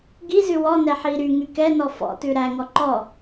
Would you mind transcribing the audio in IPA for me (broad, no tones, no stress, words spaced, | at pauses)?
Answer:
ɡizʉ wɔnɛ ħi ɾyŋy kɛnɔ fɔ̰tʉ ɾæŋɔ ǃɔ